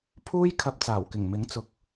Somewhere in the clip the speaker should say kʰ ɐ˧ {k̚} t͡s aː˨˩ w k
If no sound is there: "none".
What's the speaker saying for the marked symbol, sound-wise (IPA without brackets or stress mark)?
p̚